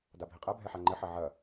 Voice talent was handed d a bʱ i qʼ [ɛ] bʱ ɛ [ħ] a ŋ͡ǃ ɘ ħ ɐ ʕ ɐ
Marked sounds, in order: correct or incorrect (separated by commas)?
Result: correct, correct